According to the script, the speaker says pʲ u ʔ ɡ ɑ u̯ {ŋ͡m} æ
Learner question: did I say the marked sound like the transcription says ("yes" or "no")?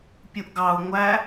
no